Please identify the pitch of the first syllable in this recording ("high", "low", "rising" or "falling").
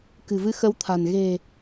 low